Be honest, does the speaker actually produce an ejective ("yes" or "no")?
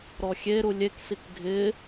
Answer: no